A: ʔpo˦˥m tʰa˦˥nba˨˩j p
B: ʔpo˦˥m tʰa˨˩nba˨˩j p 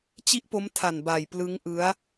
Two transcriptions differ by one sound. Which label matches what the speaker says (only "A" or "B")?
B